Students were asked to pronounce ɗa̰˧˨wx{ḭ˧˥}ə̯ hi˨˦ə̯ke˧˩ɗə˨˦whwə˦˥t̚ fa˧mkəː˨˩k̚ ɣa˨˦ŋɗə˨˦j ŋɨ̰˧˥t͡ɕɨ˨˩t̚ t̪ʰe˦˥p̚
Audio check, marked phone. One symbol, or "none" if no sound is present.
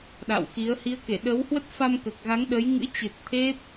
i˨˦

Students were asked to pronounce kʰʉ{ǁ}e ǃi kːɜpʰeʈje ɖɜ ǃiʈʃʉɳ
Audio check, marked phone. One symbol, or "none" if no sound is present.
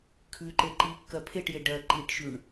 ǃ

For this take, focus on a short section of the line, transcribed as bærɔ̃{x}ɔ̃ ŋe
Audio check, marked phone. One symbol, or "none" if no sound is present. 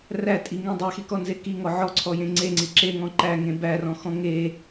x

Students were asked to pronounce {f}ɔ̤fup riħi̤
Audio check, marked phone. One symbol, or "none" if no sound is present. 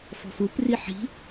f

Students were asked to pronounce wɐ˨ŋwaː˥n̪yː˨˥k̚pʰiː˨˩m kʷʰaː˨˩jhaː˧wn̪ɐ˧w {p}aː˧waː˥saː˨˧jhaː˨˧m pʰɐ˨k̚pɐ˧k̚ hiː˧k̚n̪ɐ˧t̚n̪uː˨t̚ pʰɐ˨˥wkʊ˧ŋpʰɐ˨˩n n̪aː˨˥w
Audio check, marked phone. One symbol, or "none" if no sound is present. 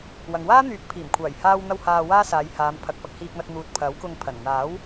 h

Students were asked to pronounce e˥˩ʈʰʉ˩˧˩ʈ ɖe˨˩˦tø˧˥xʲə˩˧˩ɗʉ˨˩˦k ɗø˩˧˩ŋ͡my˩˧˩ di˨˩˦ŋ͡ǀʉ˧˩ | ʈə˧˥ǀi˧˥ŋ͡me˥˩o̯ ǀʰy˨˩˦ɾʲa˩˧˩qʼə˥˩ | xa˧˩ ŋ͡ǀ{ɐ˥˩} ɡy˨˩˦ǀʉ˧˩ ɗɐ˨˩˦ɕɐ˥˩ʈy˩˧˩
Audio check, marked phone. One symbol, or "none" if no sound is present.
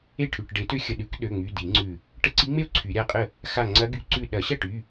ɐ˧˥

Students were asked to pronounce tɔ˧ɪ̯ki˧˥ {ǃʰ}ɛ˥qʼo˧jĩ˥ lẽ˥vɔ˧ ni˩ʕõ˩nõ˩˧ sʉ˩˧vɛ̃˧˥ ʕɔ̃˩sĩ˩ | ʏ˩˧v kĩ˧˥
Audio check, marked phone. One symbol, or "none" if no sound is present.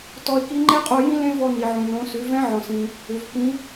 ŋ͡ǃ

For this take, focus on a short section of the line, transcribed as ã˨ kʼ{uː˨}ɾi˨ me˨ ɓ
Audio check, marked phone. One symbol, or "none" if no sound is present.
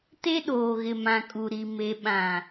u˨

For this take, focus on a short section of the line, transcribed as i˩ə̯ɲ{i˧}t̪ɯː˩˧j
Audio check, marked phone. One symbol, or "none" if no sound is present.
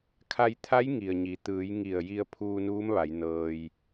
i˩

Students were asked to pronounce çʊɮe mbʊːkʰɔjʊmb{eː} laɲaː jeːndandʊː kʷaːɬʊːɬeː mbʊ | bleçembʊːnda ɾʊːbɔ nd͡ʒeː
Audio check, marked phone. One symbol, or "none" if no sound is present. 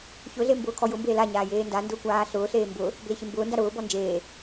eː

